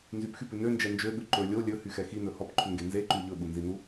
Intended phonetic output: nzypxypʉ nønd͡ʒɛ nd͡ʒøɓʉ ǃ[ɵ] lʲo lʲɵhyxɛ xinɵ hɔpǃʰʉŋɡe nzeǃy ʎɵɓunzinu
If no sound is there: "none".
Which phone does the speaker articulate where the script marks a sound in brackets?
ɵ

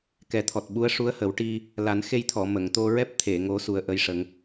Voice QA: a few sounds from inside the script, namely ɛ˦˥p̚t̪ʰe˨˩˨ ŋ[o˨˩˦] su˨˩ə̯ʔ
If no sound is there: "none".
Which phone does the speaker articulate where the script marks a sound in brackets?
o˨˩˦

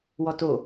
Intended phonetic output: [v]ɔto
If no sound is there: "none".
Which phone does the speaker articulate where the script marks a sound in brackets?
w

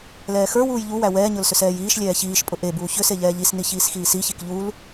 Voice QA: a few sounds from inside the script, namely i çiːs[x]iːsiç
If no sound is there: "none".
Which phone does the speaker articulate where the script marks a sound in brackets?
x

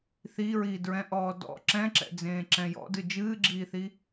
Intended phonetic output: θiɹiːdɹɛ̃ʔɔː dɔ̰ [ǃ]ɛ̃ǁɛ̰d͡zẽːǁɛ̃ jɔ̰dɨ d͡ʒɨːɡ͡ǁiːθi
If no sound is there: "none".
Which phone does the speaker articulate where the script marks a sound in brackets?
ǁ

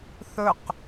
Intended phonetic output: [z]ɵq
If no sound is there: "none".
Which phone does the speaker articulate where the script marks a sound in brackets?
θ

